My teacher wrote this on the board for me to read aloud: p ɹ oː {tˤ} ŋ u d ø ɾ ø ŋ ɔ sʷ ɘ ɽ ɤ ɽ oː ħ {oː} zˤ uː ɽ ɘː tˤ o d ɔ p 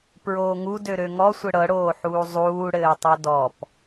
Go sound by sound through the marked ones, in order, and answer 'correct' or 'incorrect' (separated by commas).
incorrect, incorrect